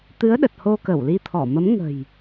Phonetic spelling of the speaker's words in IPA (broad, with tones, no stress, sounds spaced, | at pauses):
t̪ ɨ˨˦ ə̯ ɗ ə˨˩ t̚ h o˧ k ə˧˩ w l i˧ t̪ʰ ɔ˧˩ m ə˨˦ m ŋ ə̤˨˩ j